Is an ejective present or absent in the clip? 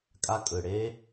present